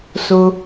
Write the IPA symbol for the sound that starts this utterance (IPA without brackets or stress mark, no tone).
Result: s